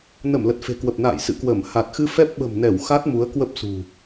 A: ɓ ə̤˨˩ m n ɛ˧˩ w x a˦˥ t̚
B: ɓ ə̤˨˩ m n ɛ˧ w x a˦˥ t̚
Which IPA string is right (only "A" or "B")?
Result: A